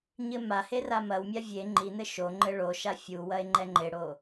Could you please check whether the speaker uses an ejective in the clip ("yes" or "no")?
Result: no